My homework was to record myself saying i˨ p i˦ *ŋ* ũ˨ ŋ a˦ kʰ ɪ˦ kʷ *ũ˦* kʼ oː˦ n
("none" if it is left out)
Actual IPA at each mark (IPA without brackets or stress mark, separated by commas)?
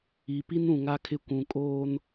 n, ũ˨